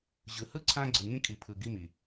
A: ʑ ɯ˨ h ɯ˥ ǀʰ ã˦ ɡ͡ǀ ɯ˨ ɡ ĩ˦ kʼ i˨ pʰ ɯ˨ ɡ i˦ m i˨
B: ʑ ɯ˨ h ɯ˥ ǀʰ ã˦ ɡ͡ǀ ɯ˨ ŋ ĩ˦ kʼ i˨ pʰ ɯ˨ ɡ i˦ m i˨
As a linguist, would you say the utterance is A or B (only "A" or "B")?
B